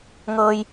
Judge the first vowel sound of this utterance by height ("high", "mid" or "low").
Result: mid